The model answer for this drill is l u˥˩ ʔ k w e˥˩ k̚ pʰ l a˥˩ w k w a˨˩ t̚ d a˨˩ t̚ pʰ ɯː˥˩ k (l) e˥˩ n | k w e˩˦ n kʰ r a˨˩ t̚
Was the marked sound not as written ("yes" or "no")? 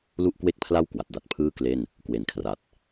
no